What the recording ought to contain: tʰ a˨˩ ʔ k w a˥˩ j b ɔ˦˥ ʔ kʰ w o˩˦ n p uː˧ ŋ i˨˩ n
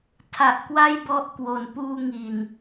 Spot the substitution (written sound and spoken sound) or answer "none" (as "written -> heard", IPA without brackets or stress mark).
kʰ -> k